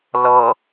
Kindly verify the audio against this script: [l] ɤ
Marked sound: correct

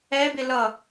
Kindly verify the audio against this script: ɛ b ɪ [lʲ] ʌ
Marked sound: incorrect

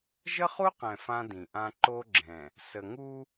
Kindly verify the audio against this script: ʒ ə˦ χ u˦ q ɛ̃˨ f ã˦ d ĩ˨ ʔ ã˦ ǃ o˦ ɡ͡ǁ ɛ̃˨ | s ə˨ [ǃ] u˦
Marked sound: incorrect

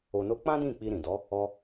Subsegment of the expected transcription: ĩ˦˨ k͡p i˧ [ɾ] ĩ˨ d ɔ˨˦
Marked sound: correct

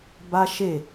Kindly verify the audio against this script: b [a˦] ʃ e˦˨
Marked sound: correct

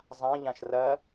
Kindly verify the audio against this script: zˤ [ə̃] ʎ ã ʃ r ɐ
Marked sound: incorrect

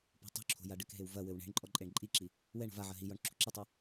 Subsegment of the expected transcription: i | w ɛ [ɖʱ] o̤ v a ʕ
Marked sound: incorrect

